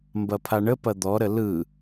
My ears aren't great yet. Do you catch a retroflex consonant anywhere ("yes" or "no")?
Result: yes